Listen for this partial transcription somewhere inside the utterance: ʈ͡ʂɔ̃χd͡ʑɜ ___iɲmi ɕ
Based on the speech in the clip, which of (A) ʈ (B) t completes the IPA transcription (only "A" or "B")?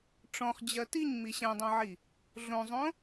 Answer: B